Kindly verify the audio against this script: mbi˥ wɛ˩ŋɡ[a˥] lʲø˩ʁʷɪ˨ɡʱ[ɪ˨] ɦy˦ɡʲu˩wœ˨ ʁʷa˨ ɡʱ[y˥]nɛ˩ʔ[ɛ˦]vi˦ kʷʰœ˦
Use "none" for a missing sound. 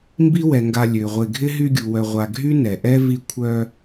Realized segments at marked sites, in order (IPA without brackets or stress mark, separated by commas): a˨, ɪ˥, y˥, ɛ˥